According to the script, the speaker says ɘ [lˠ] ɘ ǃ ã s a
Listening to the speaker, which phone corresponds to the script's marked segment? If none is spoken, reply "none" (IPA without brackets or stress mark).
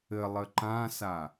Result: lˠ